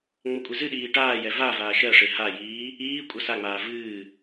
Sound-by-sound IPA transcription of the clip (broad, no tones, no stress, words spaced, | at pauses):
ŋ͡mʌkʷʼizɨɗiː ʈaːjɛ va vaːʃɜʂe hajiː | iː kʷʼʌsaŋ͡maː vɨː